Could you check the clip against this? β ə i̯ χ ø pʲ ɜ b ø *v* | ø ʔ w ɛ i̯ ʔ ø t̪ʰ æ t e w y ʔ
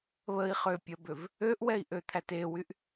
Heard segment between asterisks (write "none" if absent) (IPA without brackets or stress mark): v